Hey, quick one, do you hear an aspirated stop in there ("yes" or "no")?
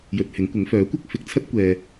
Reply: yes